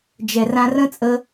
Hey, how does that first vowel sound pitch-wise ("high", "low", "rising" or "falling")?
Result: low